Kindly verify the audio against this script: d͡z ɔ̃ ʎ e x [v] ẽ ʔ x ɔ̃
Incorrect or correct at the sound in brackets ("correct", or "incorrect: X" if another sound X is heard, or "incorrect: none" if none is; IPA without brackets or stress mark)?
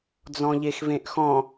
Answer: correct